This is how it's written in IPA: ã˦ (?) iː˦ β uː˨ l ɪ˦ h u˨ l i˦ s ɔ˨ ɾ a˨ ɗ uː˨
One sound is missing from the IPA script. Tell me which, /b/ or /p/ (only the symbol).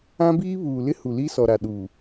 b